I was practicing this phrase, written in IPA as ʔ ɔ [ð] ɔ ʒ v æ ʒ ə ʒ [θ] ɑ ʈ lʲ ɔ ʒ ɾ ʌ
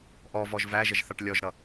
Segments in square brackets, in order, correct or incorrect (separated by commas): incorrect, correct